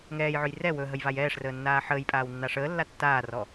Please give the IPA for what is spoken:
ŋ ɛː j ʕ ɵ j r ɛ w ɵ ɦ ə j v a j ɛː ʂ r əː nː aː ħ əː j pʼ aː w nː a ʂ əː lː a tː aː r ɔ

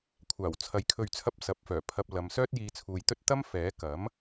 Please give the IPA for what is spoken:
kʷʰ aː˨˩ w t͡sʰ ɐ˨ j kʰ ɵ˨ ɥ t͡sʰ ɐ˧ p̚ s ɐ˨˥ p̚ f œː˨˩ pʰ ɐ˧ p̚ l ɐ˨˧ m s œː˥ t̚ j iː˧ t͡sʰ uː˨ j t̪ ɵ˥ t̚ t̪ ɐ˥ m f ɛː˨˥ k ɐ˨˥ m

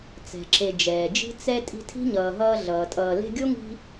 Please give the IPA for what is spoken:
t͡s ɛ̤˩ ǁ e˨ d͡ʒ ɛː˩ d͡ʒ i̤˦ t͡s ɛ˦ tʼ i̤˦ tʰ i̤˥ ɲ ʌː˨ ɦ ʌː˦ ɮ ʌː˩ tʼ ʌː˨ l e̤˦ ɡʲ o˥ ŋ i̤˦

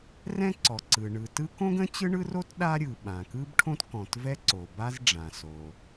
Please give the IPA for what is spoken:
r ɛ̃˥ ǀ ɔ˩ ǀ ɯ˩ ɳ ɯ˩ t ɯ˥ k õ˥ ɡ ə̃˥ t͡ɕ ɯ˥ ɳ ɯ˥ r o˥ t ɗ a˥ ɾʲ ɯ˩ ɓ ã˩ k ɯ˥ b ʈʰ õ˥ t k ɔ̃˩ t v ɛ˥ ǀ o˩ b a˥ z ɖ͡ʐ ã˩ s o˩

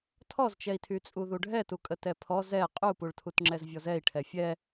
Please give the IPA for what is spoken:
tʰ ɔ z t͡ʃ ɛ i̯ tʰ y t͡sʼ u ð u ɖʱ ɛ t u kʼ ə t ɛ pʰ ɔ z ɛ qʼ u p u ɭ tʰ u t ŋ͡ǁ ɛ z vʲ ɔ z ɛ i̯ ʈʰ ɛ fʲ ɛ

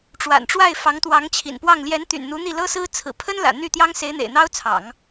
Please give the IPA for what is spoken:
ʈ͡ʂ w a̰˨˩ n ʈ͡ʂ w a˥˩ ɪ̯ f ɑ˧˥ ŋ t̪ w ɑ˧˥ ŋ t͡ɕʰ ḭ˨˩ n p w ɑ˥˩ ŋ l j ɛ˧˥ n t̪ y̰˨˩ n n̪ u˧˥ n̪ i˥˩ l ɤ˥ s ɹ̩˥ t͡sʰ ɹ̩˨˩ pʰ ə˥ n l ä̰˨˩ n̪ y˥˩ t̪ j ɑ˥ ŋ s e˧˥ ɪ̯ n̪ ḛ˨˩ ɪ̯ n̪ ɑ˥ ʊ̯ t͡sʰ ɑ̰˨˩˦ ŋ

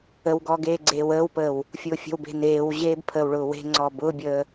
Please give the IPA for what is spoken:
ə w ɡ ɔː ɡ eː ɡ͡ǀ eː w əː w p əː w | fʲ ʊː fʲ ə̤ w b e̤ n eː w ʑ eː b pʰ əː w ɭ ʊː w e̤ ŋ͡ǀ ɔː b ʊː bʲ əː

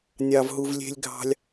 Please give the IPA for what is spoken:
nʲ ɑ˥ v ɦ u˥ v lʲ e̤˥ lʲ ɡʱ ɑ̤˥ lʲ

